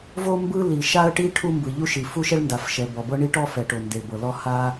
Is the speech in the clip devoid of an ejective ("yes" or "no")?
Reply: yes